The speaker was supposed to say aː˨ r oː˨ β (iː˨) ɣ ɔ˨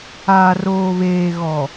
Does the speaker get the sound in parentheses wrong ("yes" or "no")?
yes